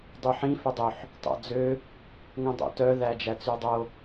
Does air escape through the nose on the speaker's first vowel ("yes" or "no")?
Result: no